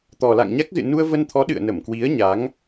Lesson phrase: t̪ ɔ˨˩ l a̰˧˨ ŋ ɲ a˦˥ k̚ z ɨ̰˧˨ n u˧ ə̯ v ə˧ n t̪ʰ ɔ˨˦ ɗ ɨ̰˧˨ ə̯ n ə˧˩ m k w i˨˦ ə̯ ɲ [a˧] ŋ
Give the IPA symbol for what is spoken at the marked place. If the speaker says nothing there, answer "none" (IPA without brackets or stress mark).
a˨˦